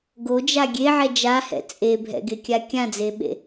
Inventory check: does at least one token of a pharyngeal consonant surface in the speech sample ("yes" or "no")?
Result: yes